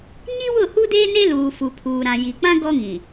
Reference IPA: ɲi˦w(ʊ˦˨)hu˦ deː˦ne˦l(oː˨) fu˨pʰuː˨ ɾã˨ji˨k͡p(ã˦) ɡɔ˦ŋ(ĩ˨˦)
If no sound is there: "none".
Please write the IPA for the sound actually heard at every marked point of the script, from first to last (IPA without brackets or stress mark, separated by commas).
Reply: ʊ˦˨, uː˨, ã˦, ĩ˨